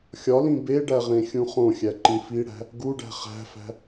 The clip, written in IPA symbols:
xʲɒlĩ beɖæʁẽxʲũ χõxʲæǃĩ fiɽæ̤ | ɡuɖæ̤ χæ̤fæ̤

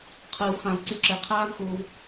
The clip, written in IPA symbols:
qʰɯː˧vχã˧vǀy˦˨ǁɛ˧ qʰaː˦vxoː˧v

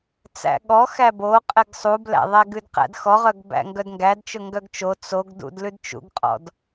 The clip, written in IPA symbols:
t͡sæ̰ɠɔ xæbo qʼɛɡsˤublæ̰ðˤæɡ ʉdqæ̰dxɔʁœɡ bæ̰ŋɡœdŋɡædt͡ʃɵ ŋɡœɡt͡ʃo t͡soɡ dṵdlʉd t͡ʃṵɡqʼɔ̰d

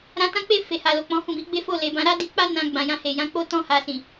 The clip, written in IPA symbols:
ɾã˧tã˦k͡pe˦˨ fe˨ha˨ lo˨k͡pɔ̃˨˦hũ˦˨ bi˨˦ɡ͡be˦fo˦˨ le˨bã˧ ɾa˦di˧k͡pa˦ nã˧ ɡ͡bã˨jã˧he˨ jã˨˦k͡po˦ tɔ̃˦ ha˧sĩ˨

